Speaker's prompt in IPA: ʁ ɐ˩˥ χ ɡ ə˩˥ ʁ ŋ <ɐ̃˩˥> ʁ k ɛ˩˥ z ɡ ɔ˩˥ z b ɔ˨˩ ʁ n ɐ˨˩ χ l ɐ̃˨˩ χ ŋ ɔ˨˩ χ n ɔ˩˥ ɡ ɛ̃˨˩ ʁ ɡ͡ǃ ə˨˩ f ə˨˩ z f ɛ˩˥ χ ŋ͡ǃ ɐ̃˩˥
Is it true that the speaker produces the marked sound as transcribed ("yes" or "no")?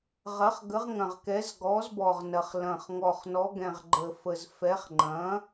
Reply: no